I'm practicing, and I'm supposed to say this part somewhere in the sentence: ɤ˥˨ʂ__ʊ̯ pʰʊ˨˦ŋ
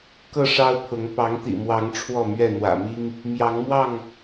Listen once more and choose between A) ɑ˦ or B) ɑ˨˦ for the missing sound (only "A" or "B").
A